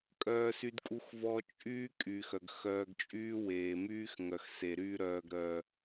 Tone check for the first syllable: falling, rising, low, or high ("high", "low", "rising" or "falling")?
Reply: high